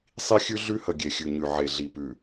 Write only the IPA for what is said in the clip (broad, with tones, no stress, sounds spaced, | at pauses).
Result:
sˤ i˦ xʲ ʉ˦ ɮ ʉ˦ h ə˨ ɡʲ e˨ xʲ ʉ˨ ɲ ʉ˨ ʕ e˨ ɮ i˨ p ʉ˨